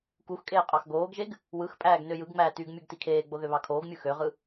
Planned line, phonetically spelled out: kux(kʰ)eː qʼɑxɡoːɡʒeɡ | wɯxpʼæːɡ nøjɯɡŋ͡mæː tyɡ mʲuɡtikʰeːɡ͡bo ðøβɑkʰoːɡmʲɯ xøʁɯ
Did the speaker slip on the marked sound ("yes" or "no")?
yes